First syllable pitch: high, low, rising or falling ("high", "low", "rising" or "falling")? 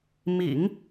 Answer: low